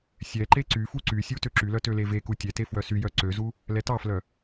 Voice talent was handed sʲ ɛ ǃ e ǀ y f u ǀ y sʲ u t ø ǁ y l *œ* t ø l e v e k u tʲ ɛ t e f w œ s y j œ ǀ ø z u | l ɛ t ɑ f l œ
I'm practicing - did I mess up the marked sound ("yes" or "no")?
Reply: no